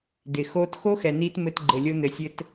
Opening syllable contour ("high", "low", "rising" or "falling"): low